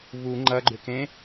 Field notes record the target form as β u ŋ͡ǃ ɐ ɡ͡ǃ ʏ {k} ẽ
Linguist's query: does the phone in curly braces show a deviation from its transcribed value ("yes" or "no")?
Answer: no